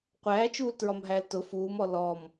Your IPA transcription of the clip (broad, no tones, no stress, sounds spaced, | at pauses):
qʷ æː t͡ʃ uː l t ɹ ɒ m ɦ æ l t ʊ f uː m ɔ l ɔ m